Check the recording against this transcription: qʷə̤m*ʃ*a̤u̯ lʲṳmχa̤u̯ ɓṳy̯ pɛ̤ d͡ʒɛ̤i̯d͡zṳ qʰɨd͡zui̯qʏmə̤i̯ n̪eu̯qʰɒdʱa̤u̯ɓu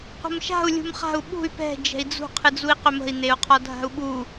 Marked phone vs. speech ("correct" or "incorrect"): correct